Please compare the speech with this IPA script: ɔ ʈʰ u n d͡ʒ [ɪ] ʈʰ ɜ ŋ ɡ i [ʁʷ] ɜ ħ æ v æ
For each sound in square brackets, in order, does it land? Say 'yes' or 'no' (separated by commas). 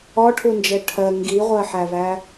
no, yes